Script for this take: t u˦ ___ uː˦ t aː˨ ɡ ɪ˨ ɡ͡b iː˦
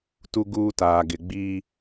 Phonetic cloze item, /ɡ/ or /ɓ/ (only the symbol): ɡ